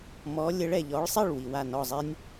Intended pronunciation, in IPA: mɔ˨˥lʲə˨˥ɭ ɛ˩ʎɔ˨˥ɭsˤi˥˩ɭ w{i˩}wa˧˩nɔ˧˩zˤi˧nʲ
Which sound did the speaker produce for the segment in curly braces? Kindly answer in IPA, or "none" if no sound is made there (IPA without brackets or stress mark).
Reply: i˩